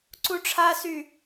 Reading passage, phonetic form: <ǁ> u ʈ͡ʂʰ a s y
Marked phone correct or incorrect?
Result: incorrect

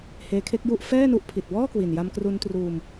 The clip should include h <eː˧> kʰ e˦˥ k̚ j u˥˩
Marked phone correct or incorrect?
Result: correct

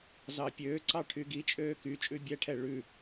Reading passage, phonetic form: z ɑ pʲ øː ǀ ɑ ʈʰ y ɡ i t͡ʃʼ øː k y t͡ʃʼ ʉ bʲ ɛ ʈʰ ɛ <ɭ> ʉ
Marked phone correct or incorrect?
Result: correct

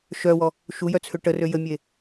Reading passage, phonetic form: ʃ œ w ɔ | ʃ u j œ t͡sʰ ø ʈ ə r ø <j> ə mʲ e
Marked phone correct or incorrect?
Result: correct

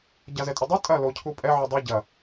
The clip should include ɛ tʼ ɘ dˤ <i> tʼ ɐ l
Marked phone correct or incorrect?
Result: incorrect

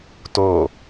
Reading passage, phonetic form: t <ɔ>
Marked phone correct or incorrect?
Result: incorrect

